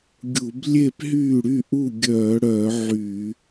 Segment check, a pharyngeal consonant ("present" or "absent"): present